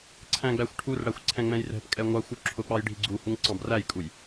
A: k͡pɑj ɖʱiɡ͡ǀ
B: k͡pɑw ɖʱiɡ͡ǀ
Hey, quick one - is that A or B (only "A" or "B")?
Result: A